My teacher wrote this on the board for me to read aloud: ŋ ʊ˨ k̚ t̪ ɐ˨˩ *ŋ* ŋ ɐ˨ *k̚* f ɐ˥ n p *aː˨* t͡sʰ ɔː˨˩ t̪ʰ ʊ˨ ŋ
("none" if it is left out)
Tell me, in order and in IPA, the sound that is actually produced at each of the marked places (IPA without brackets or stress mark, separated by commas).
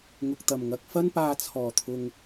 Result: m, k̚, aː˧